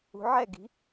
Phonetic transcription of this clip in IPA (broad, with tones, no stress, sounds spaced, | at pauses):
ṳ˩˧ ʕ ɛ˧˩ ɡ i̤˩˧